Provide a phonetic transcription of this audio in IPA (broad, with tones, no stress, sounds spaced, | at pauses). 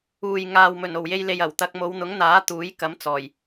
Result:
uː˨ j ŋ aː˨ w m ɵ˨˩ n o˨˩ w j e˧ j l e˨ j ɐ˨˩ w t̪ ɐ˧ k̚ m o˨˧ w n̪ ʊ˨˥ ŋ n̪ aː˨˥ t̪ uː˨˥ j k ɐ˨˥ m t͡s ɔː˨˩ j